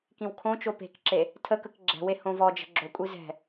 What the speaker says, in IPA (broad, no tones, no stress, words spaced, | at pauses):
kĩwkʰõt͡ʃo pe̤kǁe | tʰəkək ɡ͡ǁɛ̤we hõvɔd͡ʒə̤ ɡ͡ǁokʷʼi zɛ̤